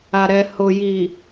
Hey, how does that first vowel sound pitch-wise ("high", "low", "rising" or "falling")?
low